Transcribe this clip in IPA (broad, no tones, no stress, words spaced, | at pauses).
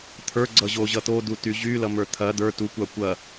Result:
t̪ʰə˞ɡ͡ǀʌʑoʑʌ t̪oduty ʑylʌmə˞ t̪ʰɐ d̪ə˞ tukʷa kʷɐ